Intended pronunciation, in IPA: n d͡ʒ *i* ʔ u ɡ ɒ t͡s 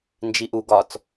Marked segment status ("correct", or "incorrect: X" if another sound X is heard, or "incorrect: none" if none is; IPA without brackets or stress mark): correct